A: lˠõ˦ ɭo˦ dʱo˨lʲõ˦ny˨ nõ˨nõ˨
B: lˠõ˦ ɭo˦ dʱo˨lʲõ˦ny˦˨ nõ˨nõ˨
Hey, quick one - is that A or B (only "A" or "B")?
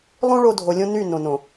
B